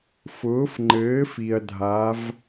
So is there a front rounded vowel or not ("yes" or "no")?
no